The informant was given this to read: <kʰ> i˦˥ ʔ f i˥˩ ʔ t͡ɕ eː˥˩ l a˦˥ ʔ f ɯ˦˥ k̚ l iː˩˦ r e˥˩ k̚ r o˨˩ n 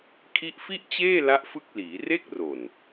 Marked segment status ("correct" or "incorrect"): correct